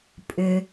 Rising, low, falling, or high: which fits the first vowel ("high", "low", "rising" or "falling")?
low